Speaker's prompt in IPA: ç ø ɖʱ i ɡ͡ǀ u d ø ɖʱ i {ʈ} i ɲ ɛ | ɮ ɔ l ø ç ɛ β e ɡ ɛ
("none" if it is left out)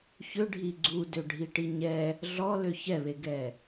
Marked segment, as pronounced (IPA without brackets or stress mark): ʈ